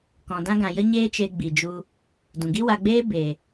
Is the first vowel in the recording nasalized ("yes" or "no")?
yes